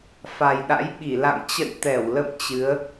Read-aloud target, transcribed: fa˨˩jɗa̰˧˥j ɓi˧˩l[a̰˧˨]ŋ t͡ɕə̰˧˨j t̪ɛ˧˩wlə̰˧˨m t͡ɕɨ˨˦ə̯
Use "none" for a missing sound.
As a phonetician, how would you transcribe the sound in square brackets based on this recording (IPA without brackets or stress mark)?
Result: a̰˧˨